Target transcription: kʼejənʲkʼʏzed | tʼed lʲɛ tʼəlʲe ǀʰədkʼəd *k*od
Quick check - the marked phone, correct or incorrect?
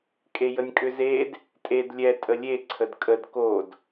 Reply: correct